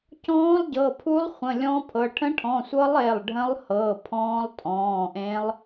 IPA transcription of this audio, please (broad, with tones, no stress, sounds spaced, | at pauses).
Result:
c ɔ̃ː˧˥ lˠ ɟ ɤ˩˧˩ pʰ u˧˥ lˠ χʷ ə̃˩˧˩ lʲ ɔ̃˧˥ pʰ ɤ˩˧˩ ʈʰ ə̃˧˥ ʈʰ ɔ̃˩˧˩ sʷ ɤ˧˥ lˠ e˩˧˩ lˠ ɖʱ ə̃˧˥ lˠ h ɤ˩˧˩ pʰ ɔ̃ː˧˥ lˠ tʼ ɔ̃ː˩˧˩ ʔ ẽ˧˥ lˠ